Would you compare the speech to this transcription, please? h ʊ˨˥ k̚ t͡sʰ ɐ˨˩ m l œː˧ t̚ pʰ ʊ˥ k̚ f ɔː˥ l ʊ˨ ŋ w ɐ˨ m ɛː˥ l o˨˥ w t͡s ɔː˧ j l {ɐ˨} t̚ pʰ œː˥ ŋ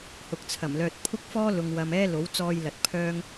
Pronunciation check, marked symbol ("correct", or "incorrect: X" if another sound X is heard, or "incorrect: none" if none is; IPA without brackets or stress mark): correct